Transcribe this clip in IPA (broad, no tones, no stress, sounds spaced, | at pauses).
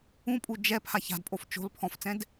ũ pʼ u d͡ʒ ɛ pʰ a ç a̤ d pʼ o f t͡ʃ o̤ l pʰ ɔ̃ f t͡s ɛ̃ d